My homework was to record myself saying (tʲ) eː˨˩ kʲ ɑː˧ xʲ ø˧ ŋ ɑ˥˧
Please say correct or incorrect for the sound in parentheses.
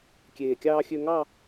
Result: incorrect